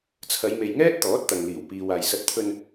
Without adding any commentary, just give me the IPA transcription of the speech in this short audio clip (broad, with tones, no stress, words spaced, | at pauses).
t͡sʰɐ˨˧jme˨j ŋɛː˥t̚t̪ɔː˨˥t̚t̪ɐ˨ŋ liː˨˩wpiː˨w aː˨jsɐ˧t̚ t̪ʰɵ˧n